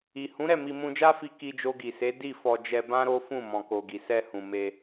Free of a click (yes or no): yes